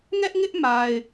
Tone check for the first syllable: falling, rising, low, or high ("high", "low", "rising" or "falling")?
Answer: high